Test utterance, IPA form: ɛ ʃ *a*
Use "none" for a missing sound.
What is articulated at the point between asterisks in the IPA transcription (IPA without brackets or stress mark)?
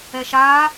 a